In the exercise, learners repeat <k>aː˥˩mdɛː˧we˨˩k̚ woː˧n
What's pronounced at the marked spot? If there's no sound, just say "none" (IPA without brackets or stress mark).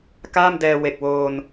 k